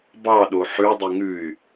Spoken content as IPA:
b ɑ ɗ o ħ ʉ dˤ y ŋ ʉ y̯

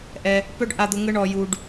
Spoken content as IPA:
ʔ ɛ˧ | p œ˦ ɖ ʔ a˧ d̪ ʊ˧ ŋ ə˦ ɳ ɔ˧ j u˧ ɖ

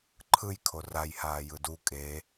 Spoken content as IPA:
ǃʰ ɯ j kʰ o r a j h aː j ɯ d u kʼ e

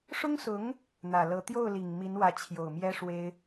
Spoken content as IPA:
ʂ ʊ˥ ŋ s ʊ˧˥ ŋ | n̪ ä˨˩ l ɤ˧˥ t̪ j o˥˩ ʊ̯ l i˨˩ ŋ m i˧˥ n w ä˧˥ t͡ɕʰ j o˨˩ ʊ̯ m j ɛ˥ ʂ w e˥ ɪ̯

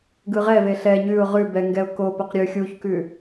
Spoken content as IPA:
ɡ ɯ ʁ ɛ v e ɬ ɛ ɲ ʉ ʊ̯ ʁ ʉ b ɛ ŋ ɡ ɛ ʊ̯ k o p o q ɾʲ ʉ xʲ u ç k ʉ

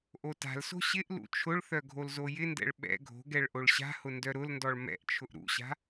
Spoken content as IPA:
ʔ o t a̤ l s o̤ ɕ ɪ ʔ l ṵ t͡ʃʰ ʊ ɭ θ œ ɡʱ o l z o j ɪ n d ɛ̰ ɭ ɓ ɛ̰ ɡʱ o̤ ɡ ɛ ɭ ʔ o ɭ ɕ a̤ h ʊ n d œ ɾ ʊ l n d ɔ ɭ m ɛ̰ ʔ t͡ʃʰ ʊ ʔ ɾ ṵ ɕ a̤

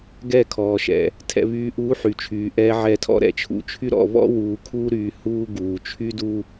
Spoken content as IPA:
ɡ ɛ˦˨ kʰ ɔː˨ ʃ ɛ̰˨ | tʰ ɛ̰˨ β yː˨ ʔ uː˨˦ ħ y˨ t͡ʃʰ yː˨ ʔ ɛː˦ ʕ ɛ˦˨ tʰ ɔ̰˦ ɾ ɛ̰˨ t͡ʃʰ ṵ˨ t͡ʃʰ y˦ ɾ ɔ̰˨ β ɔ̰˦ w uː˨ kʰ uː˦ ɾ yː˨ h uː˦ ɡ uː˨ t͡ʃʰ y˦ d u˦

